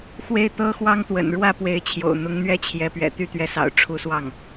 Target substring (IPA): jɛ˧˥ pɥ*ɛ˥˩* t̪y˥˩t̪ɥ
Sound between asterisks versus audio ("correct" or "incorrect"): incorrect